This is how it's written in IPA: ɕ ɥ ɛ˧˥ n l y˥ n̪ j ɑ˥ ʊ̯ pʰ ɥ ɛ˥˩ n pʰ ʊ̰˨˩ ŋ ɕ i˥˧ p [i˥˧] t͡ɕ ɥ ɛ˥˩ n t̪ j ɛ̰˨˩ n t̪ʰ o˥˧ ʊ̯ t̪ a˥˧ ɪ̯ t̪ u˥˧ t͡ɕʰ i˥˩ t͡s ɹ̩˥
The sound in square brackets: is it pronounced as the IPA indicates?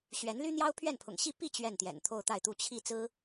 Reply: yes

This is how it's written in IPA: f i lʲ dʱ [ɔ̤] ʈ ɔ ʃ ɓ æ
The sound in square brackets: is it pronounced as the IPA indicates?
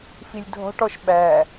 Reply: yes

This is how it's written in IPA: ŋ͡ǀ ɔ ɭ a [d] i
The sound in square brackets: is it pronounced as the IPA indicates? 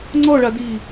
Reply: yes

